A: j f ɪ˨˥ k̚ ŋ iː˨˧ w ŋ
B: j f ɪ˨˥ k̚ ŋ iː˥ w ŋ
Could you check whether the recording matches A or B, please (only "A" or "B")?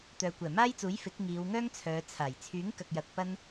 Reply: A